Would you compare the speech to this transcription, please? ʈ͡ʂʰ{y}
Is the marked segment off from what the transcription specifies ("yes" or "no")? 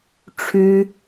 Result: no